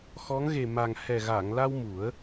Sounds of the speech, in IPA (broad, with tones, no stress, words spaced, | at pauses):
xɔ˧˥ŋ ɣe˨˩ma˨˩ŋ hɛ˨˩ɣa˨˩˨ŋla˧w mu˨˩˦ə̯